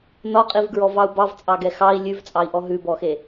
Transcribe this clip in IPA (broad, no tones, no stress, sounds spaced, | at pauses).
n ɒ qʼ i v ɡ ɹ ɔ v ɑ u̯ b ɑ v t͡sʼ ɑ ɡ ɛ x ɑ i̯ lʲ ʉ v t͡sʼ ɑ i̯ ʔ ɔ ɦ ʉ b ɔ x e